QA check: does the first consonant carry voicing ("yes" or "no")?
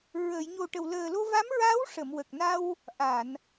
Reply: yes